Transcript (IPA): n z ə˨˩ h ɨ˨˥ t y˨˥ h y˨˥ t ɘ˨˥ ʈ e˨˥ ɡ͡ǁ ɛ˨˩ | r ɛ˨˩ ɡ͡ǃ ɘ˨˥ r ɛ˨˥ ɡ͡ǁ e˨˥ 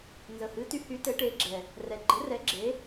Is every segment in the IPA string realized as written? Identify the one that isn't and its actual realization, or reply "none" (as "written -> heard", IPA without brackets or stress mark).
none